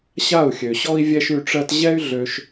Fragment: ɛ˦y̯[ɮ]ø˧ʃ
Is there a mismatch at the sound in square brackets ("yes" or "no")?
no